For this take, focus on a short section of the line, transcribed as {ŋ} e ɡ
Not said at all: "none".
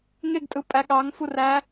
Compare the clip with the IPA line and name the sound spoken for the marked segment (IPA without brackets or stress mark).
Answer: ŋ